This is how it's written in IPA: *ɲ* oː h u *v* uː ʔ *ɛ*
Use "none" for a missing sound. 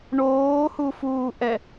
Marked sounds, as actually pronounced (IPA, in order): ɳ, f, ɛ

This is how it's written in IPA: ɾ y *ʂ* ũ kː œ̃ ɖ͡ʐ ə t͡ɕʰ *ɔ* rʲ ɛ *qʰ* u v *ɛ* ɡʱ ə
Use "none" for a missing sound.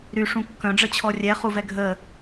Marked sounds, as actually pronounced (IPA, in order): ʂ, ɔ, χ, ɛ

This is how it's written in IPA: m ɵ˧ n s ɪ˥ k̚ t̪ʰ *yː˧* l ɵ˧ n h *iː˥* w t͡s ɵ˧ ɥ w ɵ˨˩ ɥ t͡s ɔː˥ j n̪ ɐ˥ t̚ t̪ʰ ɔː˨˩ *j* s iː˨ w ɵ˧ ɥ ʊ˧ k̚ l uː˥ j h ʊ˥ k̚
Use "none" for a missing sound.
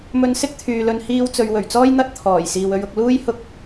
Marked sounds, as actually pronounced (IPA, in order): yː˨, iː˥, j

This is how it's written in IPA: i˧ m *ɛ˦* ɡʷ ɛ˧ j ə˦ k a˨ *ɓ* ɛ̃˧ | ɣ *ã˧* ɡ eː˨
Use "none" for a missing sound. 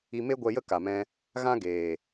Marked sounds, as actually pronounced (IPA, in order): e˦, m, ã˦

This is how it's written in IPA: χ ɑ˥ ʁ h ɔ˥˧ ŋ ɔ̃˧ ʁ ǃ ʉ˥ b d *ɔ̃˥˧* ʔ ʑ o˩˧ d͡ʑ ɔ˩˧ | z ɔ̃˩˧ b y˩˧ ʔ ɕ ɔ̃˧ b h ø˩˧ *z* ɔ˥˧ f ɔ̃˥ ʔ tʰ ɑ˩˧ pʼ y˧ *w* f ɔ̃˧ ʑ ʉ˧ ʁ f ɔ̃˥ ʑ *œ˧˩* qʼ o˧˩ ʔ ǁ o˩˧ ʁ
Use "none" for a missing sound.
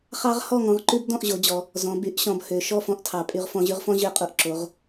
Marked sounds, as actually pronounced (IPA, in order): ɔ̃˥˧, ʃ, ʁ, ø˧˩

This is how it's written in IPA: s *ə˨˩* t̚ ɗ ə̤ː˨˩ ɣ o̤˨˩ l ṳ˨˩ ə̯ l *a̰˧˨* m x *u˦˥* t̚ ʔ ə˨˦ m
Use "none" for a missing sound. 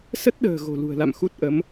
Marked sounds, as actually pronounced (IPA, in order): ə˦˥, a̰˧˨, u˦˥

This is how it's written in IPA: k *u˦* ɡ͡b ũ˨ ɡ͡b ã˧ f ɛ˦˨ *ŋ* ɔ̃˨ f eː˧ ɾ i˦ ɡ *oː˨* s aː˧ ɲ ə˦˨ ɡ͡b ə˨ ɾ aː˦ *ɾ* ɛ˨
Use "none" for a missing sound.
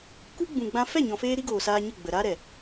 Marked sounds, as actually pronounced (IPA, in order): u˦, ɲ, oː˨, ɾ

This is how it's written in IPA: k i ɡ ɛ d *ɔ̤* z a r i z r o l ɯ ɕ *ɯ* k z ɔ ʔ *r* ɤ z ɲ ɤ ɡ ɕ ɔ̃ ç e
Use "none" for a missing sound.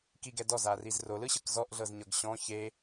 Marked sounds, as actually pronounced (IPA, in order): ɔ, ɯ, ɮ

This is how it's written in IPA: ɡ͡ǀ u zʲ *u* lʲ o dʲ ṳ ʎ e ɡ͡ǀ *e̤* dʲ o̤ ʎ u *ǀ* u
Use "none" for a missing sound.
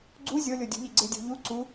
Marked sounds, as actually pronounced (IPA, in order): o, e, ǀ

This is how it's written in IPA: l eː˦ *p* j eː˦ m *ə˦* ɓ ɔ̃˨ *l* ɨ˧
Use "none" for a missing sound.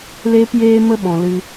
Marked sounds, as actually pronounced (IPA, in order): p, ə˦, l

